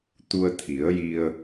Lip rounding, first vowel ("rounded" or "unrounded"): rounded